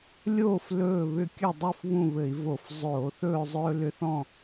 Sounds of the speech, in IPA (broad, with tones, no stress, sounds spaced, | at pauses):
lʲ oː˥˨ f l ɵː˥˨ β ʏ˥˨ kʲ ɘ˥˨ dˤ u˥˨ f β ũ˥˨ β ɘ˧˩˧ i̯ v o˧˩˧ f zˤ oː˧˩˧ θ ɵː˥˨ zˤ ɵː˦ l ʏ˦ θ ɔ̃˥˨